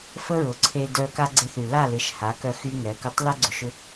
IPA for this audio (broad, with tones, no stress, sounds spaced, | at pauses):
f ə˦ ɹ ʊ˨ ǀʰ e˧ d œ˧ k a˦ ɡ͡ǀ ɪ˧ θ y˨ l a˦˨ l ɪ˨˦ ʃ h a˨˦ k œ˧ x y˦ ŋ ɛ˨˦ k ʊ˦ tˤ l ɛ˦ ɡ͡ǀ ʊ˨ ʃ ʏ˧